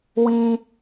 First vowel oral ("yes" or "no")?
no